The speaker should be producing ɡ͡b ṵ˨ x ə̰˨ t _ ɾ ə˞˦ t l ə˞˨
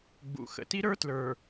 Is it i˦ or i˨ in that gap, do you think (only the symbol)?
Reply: i˦